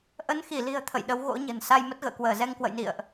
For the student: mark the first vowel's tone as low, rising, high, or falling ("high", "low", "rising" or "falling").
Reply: rising